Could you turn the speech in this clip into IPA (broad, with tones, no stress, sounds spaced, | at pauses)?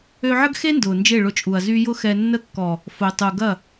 ø˧ ʕ ə˦ ɡ x e˦ n d ʊː˨ n d͡ʒ e˦˨ ɭ ʊ˧ t͡ʃʼ u˨ ɐ̯ z y˧ j ʊ˦ x ɛ˧ nː ə˦ kː ɔ˨ | f ʊː˨ tˤ u˨ ɡ ɐ˦˨